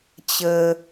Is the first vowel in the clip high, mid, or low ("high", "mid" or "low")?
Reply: mid